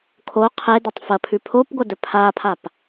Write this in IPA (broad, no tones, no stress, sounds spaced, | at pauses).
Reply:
kʰ o qʰ e d ɐ tˤ f ɐ pʰ ʉ pʰ o p ɡʷ ɐ d ɵ pʰ a pʰ a p